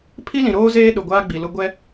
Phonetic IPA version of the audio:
pʰ i˦ l ĩ˨ ɾ oː˦ z eː˦ ɗ ʊ˨ ɡʷ aː˦ ɡ͡b i˨ l ʊ˦ ɡʷ ɛ˦

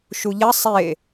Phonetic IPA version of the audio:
ʃ u ʎ ɐ sˤ e

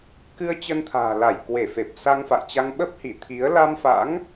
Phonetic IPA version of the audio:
k ɨ˧ ə̯ t͡ɕ ə˧ n t̪ʰ a̤ː˨˩ l a˧˩ j k w e˧˩ f e˨˩ p̚ s a˧ ŋ f a̰˧˨ j t͡ɕ a˧ ŋ ɓ ə˦˥ p̚ h i˧˩ t̪ʰ i˨˦ ə̯ l a˧ m f a̰˧˥ ŋ

